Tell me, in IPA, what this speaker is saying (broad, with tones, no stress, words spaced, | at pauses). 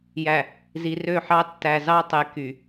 jæ˨ | zi˨rø˦˨ħɑ˦ tːæ˨zɑ˦tˤe˨ ky˨